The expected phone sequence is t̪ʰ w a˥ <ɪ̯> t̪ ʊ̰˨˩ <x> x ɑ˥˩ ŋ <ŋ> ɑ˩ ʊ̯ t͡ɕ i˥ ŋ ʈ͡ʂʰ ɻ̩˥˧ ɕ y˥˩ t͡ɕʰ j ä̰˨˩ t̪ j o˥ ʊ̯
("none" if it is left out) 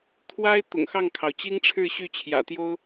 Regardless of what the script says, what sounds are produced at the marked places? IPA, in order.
ɪ̯, ŋ, kʰ

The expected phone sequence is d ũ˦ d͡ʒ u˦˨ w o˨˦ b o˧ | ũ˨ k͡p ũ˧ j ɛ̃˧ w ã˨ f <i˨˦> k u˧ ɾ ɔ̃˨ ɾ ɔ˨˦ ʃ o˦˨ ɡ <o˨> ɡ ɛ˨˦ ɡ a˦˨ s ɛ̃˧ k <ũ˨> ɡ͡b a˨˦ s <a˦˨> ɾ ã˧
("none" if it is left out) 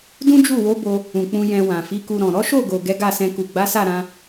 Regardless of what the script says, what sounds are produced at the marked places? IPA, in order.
i˨˦, o˨, u˨, a˦˨

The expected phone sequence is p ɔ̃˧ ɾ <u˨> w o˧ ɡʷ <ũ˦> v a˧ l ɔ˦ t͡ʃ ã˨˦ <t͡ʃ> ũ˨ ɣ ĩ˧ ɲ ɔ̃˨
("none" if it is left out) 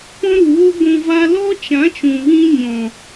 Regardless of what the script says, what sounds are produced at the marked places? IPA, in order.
u˨, ũ˨, t͡ʃ

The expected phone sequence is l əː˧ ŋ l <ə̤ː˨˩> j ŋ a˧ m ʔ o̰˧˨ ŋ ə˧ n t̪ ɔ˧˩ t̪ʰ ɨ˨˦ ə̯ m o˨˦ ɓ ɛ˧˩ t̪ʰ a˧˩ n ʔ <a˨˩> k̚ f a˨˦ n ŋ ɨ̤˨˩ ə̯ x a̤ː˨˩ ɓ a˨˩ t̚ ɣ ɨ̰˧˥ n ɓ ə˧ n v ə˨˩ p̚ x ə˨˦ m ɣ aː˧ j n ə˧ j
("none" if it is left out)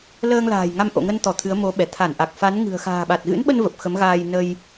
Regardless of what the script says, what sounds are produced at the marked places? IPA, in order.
a̤ː˨˩, a˨˩

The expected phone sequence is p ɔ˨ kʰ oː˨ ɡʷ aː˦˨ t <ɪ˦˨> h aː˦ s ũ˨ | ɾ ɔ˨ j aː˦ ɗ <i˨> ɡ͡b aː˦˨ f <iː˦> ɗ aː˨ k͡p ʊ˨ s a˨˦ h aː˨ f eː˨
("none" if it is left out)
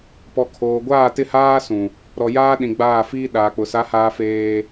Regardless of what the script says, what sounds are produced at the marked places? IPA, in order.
ɪ˦˨, ĩ˨, iː˦

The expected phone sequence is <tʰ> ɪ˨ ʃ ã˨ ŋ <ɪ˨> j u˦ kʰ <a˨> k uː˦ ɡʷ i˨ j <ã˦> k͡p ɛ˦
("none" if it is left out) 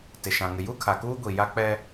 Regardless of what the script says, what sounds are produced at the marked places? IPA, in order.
t, ɪ˨, a˨, a˦

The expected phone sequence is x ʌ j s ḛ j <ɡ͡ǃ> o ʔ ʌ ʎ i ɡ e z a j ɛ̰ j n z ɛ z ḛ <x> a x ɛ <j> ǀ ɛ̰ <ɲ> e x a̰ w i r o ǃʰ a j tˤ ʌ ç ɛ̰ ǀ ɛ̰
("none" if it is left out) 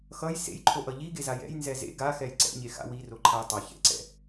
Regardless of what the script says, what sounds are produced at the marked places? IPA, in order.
ǃʰ, ɡ, j, ɲ

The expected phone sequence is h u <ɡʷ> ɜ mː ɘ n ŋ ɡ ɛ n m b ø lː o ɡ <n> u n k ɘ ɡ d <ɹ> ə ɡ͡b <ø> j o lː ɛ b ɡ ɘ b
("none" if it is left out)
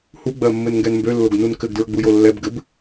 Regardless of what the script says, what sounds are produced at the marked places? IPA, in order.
ɡ͡b, n, ɹ, u

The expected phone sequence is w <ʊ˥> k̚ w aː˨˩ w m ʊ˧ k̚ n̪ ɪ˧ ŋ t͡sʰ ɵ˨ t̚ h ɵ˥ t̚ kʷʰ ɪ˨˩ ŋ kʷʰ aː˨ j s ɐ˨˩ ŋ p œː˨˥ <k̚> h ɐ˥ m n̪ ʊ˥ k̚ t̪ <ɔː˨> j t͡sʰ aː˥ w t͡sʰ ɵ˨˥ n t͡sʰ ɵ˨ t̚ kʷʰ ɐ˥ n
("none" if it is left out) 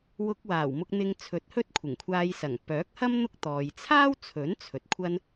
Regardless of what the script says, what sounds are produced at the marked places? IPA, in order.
ʊ˧, k̚, ɔː˨

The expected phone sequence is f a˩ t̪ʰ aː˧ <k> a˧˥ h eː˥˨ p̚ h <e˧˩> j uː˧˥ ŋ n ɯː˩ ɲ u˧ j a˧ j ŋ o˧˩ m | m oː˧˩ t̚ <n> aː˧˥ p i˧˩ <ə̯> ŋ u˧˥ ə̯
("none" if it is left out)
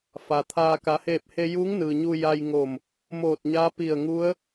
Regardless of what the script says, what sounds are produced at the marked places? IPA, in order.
k, e˧, ɲ, ə̯

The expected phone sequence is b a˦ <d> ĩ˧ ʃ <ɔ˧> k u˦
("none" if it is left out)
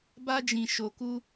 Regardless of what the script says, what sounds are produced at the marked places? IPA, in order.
d͡ʒ, o˧

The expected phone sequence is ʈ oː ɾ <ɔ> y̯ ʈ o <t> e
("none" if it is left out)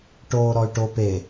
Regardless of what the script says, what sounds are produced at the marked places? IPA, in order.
ɔ, p

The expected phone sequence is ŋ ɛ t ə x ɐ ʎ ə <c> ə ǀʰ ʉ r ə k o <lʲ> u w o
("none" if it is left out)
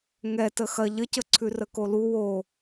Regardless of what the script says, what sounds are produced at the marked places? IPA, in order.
c, l

